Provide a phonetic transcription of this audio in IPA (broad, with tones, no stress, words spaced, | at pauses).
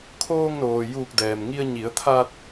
kʰoː˧ŋnoː˩ juː˧˩k̚dɛː˩mŋi˧ə̯ ɲi˩˧ə̯t̪ʰa˧t̚